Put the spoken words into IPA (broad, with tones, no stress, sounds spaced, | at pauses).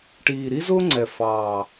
ʈ iː˨˩ ɾ i˥ z ʊː˥ ŋ͡ǀ ɛ˨˩ f ɑː˨˩